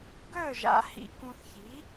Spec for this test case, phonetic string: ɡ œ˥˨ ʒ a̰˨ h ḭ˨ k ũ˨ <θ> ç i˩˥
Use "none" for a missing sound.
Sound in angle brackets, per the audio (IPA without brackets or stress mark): θ